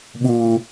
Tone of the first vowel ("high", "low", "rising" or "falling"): high